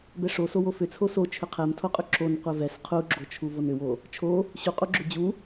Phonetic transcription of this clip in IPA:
b ɛ ʂ o s o w o f ʏ t͡sʰ o s o t͡ʃʰ ʏ qʰ ɛ m tʰ o qʼ ʏ ǁ o n qʷ ɛ v ɛ s qʰ u ɡ͡ǁ o t͡ʃʰ u v o n ʏ w o | t͡ʃʰ o | ɕ u qʼ u ɡ͡ǁ ʏ d͡ʑ u

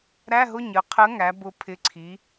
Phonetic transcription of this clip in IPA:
ɾ æ˧˥˧ ɦ ʊ˧˥˧ ɲ ə˩˧ qʰ ə˨˥ ŋ æ˩˧ b ʊ˨˩ pʰ ɪ˨˩ ǀʰ i˩˧

